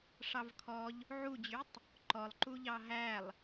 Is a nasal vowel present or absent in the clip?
absent